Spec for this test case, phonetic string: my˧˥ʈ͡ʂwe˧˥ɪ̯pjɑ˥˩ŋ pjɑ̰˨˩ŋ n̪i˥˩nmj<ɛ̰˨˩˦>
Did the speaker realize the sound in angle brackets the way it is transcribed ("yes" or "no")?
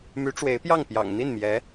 no